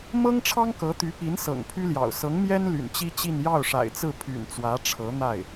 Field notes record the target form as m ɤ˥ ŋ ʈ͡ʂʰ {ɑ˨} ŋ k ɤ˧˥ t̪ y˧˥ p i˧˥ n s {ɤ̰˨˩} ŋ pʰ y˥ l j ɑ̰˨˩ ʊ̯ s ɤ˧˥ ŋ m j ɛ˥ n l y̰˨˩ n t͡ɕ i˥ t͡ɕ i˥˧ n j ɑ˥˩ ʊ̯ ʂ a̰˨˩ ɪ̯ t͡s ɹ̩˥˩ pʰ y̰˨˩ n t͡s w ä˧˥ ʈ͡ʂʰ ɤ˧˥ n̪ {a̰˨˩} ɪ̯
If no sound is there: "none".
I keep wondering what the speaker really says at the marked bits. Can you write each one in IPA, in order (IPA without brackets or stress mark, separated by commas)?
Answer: ɑ˥, ɤ̰˨˩, a˥˩